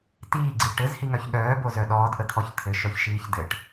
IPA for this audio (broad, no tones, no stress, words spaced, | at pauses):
tiːɡ͡ǀi ʈɘzhiŋœç ɠœːbozœ ɗɔːdʔət̪ʰɔç t̪ʰɘʃœçʃiːç dɘʈ